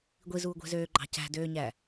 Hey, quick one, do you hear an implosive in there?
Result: no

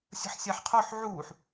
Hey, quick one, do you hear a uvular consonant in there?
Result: yes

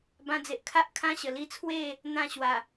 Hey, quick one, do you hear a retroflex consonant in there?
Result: no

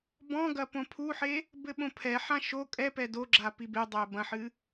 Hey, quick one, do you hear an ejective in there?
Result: yes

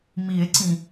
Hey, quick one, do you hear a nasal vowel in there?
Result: yes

